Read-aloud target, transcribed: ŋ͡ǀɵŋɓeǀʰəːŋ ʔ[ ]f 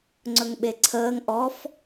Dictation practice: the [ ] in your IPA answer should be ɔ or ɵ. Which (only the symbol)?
ɔ